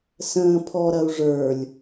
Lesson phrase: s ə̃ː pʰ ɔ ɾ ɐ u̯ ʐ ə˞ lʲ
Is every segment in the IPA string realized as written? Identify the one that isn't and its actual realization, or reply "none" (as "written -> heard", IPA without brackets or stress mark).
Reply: none